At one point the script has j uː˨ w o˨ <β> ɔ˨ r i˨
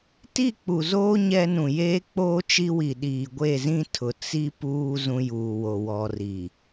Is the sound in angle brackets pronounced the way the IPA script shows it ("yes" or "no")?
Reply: no